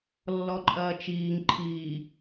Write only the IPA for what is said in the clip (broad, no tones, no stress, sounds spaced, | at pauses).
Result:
lː ɔ ǃʼ ɐː t͡ʃ iː ŋ ǃʰ iː